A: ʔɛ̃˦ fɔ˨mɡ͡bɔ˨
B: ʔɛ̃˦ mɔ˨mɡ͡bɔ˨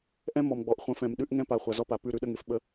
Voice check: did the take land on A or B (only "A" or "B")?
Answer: B